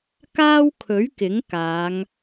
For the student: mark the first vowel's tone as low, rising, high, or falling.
high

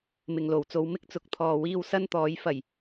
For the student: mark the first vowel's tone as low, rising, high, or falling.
low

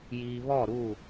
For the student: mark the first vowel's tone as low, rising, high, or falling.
low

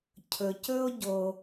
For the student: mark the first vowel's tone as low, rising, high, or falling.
low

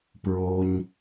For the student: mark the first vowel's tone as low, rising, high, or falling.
low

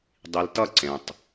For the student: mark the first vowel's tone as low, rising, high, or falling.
low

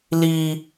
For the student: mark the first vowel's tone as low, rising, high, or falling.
high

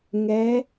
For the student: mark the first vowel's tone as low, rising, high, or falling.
rising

